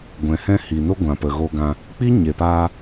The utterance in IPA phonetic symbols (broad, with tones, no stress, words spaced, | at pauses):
ɡʷɛ̃˨hɛ̃˦hi˨no˦ ɡʷã˨pə˨ɣo˧ɡã˧ | k͡pi˦ɲe˨paː˧